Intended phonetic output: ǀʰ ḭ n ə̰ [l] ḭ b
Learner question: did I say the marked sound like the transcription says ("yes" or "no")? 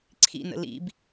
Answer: yes